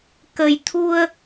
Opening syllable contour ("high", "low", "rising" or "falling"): low